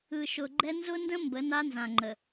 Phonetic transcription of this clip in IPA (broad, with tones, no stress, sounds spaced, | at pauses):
ɯ˨ ʃ ʊ˨ ɡ͡ǃ ɛ˦ n z ʊ˦ n d ə̃˦ m b ə˨˦ n a˦ n z ã˨ ŋ͡ǃ ə˨